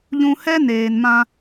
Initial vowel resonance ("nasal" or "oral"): nasal